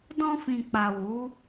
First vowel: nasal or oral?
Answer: nasal